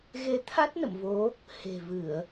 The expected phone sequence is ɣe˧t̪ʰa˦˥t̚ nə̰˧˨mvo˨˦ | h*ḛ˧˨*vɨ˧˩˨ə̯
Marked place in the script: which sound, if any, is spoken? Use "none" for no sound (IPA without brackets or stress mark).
e̤˨˩